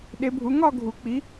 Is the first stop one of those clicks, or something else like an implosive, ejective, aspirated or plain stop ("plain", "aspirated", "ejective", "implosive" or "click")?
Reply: implosive